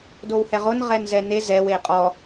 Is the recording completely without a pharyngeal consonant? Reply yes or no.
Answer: yes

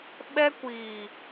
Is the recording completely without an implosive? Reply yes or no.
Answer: no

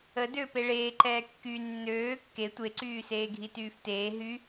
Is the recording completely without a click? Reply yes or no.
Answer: no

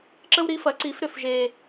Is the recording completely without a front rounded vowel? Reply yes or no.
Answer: no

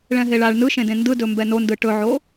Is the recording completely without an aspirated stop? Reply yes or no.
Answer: yes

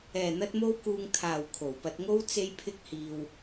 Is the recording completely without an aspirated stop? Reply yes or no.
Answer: no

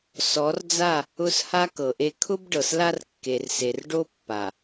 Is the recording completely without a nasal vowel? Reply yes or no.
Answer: yes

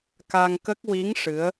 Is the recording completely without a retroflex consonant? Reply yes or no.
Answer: no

